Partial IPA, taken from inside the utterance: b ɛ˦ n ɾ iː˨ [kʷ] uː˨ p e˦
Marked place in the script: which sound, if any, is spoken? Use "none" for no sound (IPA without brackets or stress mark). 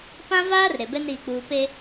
k͡p